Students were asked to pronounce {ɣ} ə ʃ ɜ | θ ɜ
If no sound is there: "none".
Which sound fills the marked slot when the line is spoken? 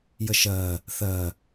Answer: j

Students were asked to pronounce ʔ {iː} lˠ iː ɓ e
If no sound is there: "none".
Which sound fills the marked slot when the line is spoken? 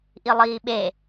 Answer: i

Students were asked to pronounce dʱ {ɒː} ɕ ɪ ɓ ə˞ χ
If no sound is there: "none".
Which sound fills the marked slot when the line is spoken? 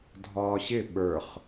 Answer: ɒː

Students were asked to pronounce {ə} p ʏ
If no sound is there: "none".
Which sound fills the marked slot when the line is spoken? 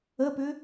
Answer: ə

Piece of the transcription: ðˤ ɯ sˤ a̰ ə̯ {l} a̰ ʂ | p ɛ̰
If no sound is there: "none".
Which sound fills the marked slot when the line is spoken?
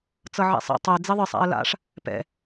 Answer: l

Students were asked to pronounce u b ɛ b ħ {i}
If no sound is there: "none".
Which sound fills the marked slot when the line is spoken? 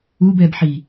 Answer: i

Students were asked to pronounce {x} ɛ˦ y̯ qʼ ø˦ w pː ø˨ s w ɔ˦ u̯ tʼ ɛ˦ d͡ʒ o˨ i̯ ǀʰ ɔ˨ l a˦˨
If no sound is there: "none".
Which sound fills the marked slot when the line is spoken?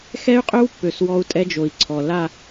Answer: x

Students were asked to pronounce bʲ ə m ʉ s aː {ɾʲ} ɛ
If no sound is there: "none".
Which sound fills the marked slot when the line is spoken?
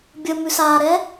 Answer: ɾ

